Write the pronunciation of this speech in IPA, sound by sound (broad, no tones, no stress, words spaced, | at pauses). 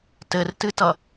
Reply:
tɘrtɨtʌ